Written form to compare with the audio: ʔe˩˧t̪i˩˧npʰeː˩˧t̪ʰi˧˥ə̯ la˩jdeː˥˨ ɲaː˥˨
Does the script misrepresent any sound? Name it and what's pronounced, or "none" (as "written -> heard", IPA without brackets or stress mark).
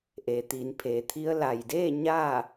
none